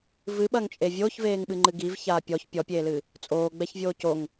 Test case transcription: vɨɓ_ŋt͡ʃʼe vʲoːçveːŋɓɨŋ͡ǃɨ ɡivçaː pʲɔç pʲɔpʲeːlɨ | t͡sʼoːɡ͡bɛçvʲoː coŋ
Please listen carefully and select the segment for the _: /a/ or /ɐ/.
ɐ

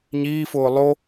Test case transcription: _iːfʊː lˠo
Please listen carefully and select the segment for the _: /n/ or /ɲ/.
ɲ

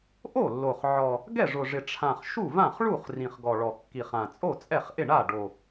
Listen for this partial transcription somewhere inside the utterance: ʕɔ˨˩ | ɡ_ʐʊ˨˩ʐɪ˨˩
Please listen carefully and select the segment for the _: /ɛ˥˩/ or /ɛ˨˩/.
ɛ˥˩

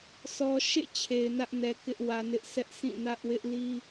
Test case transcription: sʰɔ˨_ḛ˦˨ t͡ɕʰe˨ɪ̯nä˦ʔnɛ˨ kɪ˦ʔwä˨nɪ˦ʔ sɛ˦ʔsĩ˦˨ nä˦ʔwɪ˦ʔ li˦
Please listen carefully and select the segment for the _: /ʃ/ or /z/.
ʃ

